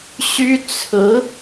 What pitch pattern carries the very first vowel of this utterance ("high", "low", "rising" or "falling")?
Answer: high